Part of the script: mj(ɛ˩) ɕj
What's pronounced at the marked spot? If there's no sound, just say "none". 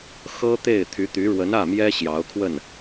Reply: ɛ˥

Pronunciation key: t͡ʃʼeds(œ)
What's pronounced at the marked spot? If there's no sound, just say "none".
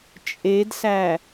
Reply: æ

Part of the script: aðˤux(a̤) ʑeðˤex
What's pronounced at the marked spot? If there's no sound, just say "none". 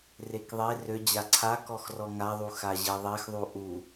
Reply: a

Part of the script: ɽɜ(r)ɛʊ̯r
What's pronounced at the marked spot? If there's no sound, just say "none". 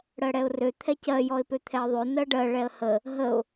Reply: ɽ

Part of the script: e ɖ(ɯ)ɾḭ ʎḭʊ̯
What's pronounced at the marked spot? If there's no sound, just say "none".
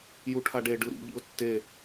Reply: ɯ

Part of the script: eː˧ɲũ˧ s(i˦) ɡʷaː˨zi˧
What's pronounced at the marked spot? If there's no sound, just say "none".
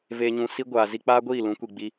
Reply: i˦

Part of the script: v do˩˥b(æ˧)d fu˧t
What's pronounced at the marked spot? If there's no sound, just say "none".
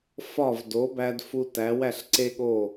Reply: æ˧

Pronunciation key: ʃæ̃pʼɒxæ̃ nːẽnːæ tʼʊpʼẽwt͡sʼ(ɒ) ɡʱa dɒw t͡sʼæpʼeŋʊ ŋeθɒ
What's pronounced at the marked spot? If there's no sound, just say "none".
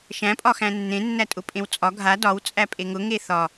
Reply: ɒ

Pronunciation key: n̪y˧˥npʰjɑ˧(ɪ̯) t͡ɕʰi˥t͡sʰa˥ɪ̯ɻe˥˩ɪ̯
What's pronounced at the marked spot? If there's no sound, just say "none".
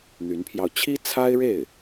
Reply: ʊ̯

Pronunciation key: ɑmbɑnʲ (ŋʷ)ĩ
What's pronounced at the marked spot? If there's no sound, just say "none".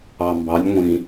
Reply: ŋʷ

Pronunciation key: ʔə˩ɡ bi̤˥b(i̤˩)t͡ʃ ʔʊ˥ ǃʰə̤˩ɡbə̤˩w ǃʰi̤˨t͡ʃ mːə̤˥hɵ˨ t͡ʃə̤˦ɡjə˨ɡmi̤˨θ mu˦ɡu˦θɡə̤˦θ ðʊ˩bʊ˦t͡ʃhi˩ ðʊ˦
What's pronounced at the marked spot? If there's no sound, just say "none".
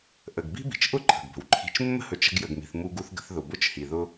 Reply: i̤˩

